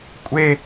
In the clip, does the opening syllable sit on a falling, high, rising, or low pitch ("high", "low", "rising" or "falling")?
high